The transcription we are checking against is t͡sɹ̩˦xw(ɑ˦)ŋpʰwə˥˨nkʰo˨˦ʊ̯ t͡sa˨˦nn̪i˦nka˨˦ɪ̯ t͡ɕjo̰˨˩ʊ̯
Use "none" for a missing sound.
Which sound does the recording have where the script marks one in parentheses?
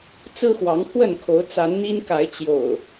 ɑ˨˦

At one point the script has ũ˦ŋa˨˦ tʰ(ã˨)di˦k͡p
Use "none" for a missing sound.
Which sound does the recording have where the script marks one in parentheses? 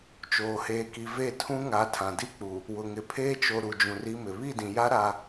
ã˨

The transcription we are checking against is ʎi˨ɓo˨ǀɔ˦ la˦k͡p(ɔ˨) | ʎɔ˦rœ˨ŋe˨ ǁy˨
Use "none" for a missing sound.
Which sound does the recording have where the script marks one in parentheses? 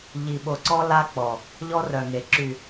ɔ˨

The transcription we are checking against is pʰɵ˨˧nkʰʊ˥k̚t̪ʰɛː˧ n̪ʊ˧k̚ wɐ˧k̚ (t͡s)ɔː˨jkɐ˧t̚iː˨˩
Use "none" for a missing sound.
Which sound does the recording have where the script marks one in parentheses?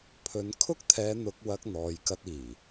n̪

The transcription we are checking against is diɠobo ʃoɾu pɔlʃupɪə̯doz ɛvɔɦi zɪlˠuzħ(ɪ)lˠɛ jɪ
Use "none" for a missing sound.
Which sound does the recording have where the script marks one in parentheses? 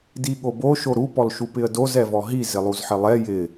ɪ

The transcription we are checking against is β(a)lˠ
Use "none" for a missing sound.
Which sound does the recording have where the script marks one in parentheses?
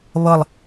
ʌ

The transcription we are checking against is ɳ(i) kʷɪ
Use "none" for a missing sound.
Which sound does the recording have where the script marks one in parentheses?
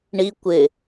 i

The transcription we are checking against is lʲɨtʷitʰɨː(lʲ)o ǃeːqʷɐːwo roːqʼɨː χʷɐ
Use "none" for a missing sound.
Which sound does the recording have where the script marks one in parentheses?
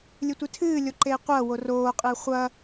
lʲ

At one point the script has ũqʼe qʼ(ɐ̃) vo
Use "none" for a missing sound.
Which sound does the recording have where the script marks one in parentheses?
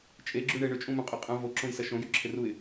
ɐ̃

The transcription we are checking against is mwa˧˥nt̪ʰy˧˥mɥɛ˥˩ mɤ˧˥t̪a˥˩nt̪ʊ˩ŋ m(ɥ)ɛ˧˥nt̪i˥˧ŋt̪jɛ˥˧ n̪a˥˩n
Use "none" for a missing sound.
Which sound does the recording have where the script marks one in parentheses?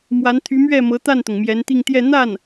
j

